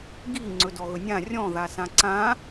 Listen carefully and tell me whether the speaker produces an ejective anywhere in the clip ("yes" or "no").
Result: no